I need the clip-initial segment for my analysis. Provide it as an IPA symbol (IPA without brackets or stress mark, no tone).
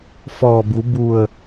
f